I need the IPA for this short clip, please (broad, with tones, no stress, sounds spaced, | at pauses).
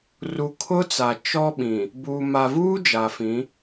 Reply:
r u˨ kʰ ʊ˦ t͡s a˨ t͡ʃ ɔ˦ ɓ ĩ˨ | b u˨ m a˨ v uː˦ d͡ʒ a˨ f ĩ˨˦